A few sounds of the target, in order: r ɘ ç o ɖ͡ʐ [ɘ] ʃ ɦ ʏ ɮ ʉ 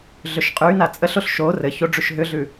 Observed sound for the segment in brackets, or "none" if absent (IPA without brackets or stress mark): ʉ